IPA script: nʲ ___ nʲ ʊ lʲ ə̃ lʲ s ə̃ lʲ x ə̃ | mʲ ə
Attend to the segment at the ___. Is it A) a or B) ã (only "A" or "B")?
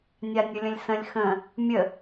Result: A